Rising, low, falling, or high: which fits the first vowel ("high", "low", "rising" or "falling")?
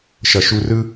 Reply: low